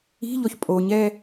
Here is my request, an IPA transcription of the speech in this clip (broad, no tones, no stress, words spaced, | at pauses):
i̤ʎɔç pʼoɲɛ